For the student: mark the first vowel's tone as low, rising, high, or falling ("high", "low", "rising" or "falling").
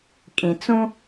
low